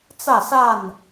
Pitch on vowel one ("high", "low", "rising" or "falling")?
falling